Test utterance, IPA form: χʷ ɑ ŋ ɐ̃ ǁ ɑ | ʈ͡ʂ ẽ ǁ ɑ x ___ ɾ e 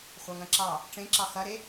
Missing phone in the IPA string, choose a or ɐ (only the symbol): ɐ